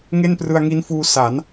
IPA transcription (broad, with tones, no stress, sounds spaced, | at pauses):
ŋ e˥˩ n p r ɯ˧ a̯ ŋ i˦˥ n f uː˧ s a˩˦ n